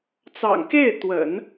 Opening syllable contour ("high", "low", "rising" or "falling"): low